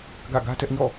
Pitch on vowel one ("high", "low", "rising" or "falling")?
falling